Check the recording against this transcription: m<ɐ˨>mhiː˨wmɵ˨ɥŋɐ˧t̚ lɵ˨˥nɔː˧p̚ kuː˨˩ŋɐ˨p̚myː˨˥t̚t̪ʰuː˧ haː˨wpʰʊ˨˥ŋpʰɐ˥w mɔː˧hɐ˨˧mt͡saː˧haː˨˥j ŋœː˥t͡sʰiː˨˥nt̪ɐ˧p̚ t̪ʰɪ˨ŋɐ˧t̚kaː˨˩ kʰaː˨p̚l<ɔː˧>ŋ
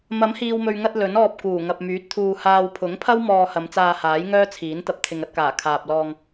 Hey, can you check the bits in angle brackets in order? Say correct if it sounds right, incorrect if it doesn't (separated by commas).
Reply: incorrect, correct